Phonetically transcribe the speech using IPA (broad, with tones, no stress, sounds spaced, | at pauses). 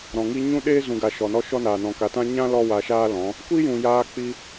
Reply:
ɾ ɔ̃˨ ŋ i˧ ɲ ũ˦ ɗ eː˦ z ũ˨ ɡ a˨ ʃ ɔ˨ n ɔ˦ ʃ ɔ˦ n aː˨ n ɔ̃˨ k a˨ t ã˦ ɲ ã˦ l ɔ˦ w a˧ ʃ aː˦ l ɔ̃˨˦ | kʷ i˦ j ũ˨ j aː˧ k͡p i˧